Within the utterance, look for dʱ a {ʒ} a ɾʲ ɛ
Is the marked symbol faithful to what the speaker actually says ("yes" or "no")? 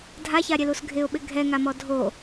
no